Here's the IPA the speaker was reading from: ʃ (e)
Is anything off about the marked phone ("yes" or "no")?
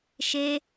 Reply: no